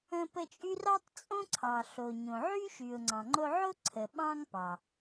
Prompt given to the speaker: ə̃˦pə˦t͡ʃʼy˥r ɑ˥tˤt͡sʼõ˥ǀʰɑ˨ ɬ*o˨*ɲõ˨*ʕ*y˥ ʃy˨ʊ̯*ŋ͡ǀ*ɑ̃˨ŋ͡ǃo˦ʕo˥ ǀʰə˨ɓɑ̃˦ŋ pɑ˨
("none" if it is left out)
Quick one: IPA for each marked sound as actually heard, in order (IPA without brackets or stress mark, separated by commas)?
o˨, ʕ, ŋ͡ǀ